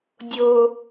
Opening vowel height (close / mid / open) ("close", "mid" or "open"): mid